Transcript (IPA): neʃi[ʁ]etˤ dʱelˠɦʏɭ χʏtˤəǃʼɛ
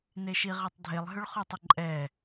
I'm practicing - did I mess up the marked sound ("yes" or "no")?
no